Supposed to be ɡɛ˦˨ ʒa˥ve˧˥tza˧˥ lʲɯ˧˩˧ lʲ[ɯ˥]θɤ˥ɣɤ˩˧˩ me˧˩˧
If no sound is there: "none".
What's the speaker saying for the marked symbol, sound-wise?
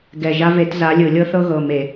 ɤ˥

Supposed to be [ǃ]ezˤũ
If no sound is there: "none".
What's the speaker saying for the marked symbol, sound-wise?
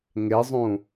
ŋ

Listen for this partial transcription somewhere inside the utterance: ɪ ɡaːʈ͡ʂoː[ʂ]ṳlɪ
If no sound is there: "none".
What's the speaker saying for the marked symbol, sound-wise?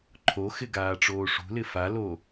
ʂ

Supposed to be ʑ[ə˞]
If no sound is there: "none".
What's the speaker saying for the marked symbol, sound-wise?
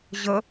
ə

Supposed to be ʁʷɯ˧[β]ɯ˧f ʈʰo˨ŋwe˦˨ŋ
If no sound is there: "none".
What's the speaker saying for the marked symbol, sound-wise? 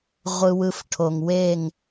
w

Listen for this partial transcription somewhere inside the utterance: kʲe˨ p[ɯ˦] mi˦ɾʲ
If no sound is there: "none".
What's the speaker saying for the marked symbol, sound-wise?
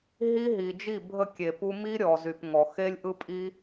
u˦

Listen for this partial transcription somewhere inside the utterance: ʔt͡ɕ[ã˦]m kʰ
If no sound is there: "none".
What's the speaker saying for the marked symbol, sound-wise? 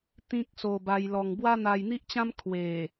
ã˦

